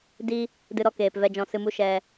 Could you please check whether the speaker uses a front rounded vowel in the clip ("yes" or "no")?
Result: no